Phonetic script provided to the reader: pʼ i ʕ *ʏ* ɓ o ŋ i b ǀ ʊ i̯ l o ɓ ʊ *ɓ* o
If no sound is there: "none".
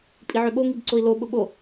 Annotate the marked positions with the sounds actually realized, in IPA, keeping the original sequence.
ʏ, ɓ

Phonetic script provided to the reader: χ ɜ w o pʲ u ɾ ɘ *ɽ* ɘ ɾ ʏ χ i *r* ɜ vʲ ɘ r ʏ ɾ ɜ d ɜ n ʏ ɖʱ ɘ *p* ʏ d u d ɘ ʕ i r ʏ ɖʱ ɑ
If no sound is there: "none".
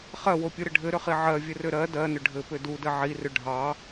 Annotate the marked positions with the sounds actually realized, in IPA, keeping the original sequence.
ɖʱ, ʕ, p

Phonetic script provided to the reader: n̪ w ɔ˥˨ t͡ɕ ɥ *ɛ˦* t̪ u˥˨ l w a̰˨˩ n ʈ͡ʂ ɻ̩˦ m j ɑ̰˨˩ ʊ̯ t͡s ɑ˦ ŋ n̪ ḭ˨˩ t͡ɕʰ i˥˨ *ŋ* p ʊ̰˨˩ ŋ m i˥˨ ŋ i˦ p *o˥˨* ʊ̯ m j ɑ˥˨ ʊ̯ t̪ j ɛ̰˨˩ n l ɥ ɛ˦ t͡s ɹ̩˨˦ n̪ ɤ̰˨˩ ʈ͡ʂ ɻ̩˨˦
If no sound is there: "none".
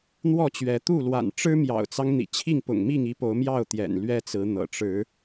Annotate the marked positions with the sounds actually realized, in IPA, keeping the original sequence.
ɛ˨˦, ŋ, o˨˦

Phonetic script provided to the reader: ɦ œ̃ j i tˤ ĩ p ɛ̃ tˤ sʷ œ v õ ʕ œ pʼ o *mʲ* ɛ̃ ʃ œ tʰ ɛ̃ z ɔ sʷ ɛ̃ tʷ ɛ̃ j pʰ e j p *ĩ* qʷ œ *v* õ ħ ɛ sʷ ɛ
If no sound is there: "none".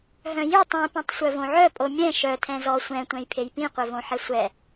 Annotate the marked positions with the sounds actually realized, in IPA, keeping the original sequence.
mʲ, ĩ, v

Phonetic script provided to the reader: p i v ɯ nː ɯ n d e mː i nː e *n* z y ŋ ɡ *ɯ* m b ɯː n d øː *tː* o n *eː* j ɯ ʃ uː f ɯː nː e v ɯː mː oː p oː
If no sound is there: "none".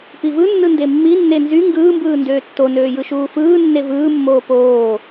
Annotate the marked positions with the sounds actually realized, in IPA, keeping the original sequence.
n, ɯː, tː, øː

